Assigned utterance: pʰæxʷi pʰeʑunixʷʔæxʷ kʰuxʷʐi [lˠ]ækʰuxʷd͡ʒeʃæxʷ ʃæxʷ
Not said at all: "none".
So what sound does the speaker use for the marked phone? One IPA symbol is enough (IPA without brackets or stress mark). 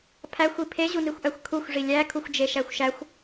lʲ